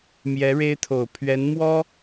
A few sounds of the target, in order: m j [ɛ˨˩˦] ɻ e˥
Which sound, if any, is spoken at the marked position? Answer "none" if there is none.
ɛ˧˥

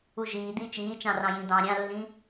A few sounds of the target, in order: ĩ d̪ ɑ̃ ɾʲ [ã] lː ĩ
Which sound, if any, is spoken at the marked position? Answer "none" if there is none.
ã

